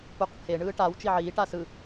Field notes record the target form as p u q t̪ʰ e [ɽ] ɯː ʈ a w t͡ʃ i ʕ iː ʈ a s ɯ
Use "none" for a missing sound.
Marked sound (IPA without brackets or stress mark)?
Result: ɳ